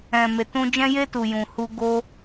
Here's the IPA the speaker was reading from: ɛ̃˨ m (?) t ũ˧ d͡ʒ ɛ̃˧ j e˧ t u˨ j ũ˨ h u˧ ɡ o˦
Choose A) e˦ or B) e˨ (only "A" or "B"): B